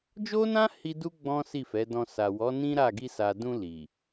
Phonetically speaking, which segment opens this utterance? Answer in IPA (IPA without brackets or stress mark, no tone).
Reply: d͡ʒ